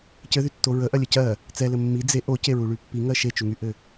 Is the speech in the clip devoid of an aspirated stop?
yes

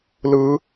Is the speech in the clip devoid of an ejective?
yes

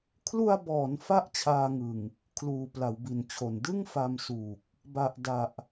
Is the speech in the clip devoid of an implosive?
yes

